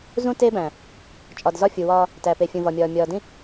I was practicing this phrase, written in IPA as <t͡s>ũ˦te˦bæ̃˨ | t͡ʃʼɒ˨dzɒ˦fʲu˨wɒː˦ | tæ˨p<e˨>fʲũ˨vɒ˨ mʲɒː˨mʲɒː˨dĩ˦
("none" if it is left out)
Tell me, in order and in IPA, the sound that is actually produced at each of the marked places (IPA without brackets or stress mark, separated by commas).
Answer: z, e˨